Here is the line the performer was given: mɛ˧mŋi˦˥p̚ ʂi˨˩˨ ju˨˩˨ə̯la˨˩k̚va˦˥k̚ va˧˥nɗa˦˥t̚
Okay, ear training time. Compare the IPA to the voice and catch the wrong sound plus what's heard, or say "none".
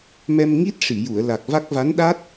p̚ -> t̚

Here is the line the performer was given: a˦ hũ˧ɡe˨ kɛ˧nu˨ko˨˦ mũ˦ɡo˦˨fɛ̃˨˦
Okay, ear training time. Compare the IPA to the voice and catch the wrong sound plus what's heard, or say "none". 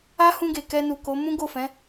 none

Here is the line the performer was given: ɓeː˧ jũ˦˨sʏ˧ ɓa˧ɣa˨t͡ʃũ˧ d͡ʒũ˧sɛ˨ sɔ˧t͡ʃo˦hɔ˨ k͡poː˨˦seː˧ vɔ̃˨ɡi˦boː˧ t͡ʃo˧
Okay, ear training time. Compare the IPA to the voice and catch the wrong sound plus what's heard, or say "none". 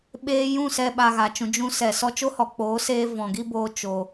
ʏ˧ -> ɛ˧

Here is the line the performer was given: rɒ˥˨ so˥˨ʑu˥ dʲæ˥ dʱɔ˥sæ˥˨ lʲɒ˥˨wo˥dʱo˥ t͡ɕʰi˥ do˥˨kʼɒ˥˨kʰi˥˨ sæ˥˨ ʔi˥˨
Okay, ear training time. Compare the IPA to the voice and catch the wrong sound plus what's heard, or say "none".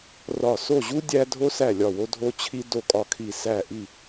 ɔ˥ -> o˥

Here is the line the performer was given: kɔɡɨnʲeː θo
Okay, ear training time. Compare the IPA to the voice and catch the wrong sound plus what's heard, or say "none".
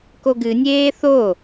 ɔ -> o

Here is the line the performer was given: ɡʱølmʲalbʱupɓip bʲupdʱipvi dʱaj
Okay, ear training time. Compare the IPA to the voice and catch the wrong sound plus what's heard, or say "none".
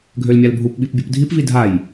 none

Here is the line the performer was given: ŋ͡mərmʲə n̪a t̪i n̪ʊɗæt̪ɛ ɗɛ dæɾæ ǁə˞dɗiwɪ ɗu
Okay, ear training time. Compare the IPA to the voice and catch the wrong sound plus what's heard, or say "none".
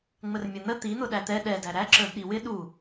a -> ə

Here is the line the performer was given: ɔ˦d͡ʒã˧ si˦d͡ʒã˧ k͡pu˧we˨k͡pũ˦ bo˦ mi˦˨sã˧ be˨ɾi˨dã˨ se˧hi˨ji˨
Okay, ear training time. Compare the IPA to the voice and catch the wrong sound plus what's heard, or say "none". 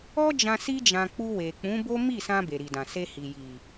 ũ˦ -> ũ˨˦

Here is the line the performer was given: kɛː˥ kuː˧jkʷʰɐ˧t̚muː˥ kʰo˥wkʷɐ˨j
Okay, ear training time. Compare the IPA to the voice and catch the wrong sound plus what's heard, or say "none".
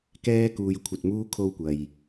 none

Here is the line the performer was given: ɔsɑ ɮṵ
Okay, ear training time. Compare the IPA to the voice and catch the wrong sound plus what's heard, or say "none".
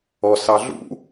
none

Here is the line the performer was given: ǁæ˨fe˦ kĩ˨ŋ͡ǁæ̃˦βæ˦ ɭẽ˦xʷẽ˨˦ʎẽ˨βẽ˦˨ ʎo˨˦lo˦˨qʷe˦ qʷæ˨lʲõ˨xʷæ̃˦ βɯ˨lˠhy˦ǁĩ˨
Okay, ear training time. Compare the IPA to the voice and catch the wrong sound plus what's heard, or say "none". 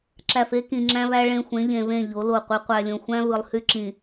none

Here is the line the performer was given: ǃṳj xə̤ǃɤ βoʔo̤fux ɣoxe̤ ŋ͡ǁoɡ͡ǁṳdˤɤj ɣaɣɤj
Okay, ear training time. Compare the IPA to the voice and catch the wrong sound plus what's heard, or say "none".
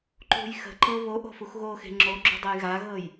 none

